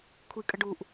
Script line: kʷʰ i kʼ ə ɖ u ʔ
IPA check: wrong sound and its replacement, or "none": none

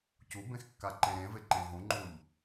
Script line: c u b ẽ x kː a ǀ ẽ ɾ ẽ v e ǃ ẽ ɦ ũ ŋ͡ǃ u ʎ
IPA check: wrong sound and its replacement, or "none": ǀ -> ǃ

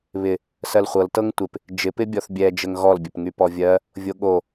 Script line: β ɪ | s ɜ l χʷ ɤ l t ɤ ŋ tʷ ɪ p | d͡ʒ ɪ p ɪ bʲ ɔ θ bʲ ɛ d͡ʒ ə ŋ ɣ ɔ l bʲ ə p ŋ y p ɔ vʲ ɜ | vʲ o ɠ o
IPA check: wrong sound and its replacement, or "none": none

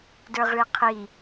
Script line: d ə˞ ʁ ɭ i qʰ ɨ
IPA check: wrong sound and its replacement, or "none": ɨ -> i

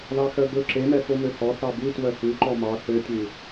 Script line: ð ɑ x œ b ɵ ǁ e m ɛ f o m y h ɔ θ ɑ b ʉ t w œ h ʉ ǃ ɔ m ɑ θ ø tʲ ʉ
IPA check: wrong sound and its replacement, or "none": y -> ø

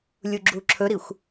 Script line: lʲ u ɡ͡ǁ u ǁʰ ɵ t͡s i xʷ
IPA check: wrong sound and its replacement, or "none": t͡s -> ɾ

